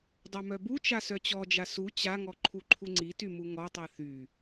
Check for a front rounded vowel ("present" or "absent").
present